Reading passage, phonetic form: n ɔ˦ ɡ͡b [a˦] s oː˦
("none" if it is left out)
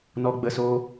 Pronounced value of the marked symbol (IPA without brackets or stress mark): ə˦